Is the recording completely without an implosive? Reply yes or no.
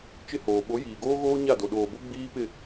no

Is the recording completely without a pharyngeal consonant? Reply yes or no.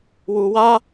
yes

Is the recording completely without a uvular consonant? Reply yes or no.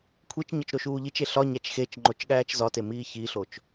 yes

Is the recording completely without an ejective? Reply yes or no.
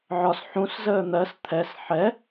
yes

